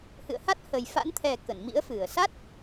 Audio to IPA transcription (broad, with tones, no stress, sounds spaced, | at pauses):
h ɨ̰˧˨ ə̯ h a˦˥ t̚ h ə˨˩ j f a̰˧˥ n t̪ʰ ɛ˨˩ k ə˧˩ n m ḭ˧˥ ə̯ f ɨ˧˩ ə̯ s a˦˥ t̚